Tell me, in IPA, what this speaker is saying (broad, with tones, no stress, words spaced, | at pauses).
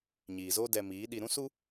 ɲiː˨zoː˦ dɛ˧miː˨˦ɗi˧ ɾũ˦su˦